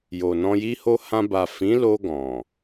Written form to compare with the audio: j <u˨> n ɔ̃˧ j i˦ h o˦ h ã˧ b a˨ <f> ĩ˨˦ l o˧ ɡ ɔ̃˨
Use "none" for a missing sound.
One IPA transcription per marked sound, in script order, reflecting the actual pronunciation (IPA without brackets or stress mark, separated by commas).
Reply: o˨, f